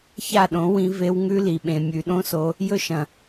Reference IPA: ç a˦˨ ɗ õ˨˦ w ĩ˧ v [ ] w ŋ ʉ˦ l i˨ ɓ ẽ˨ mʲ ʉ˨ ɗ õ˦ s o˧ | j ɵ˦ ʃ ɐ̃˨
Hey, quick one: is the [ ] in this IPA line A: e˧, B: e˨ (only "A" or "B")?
A